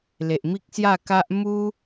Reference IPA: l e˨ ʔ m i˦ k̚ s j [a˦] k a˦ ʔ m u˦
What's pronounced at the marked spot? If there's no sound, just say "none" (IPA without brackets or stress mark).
a˥˧